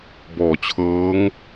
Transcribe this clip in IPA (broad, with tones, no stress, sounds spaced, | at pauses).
b ɔː˩˦ t͡ɕʰ ɤː˦˥ ŋ